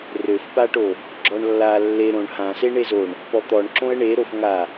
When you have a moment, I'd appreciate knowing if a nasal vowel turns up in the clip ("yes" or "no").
yes